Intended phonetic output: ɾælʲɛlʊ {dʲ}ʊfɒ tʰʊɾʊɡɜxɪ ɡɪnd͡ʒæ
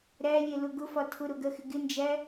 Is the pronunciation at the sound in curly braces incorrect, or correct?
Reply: incorrect